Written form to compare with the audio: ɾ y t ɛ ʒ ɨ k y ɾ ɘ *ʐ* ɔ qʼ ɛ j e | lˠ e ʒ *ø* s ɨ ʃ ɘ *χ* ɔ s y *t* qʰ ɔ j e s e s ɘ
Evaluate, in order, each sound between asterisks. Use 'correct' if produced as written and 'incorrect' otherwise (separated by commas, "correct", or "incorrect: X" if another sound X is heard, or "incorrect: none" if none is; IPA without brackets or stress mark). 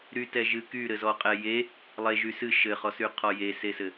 incorrect: z, incorrect: y, correct, incorrect: none